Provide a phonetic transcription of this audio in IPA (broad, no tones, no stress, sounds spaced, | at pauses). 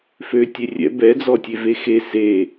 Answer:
f ø tʲ e rʲ ɛ̰ b ɛ d͡z ɔ tʲ e v e x e s e